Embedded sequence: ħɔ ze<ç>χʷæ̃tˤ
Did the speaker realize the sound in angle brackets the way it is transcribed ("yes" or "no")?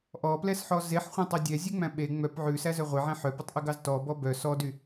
no